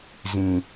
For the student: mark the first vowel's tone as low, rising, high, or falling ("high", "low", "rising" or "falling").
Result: low